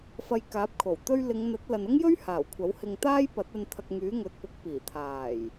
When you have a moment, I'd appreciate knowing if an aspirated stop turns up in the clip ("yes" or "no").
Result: yes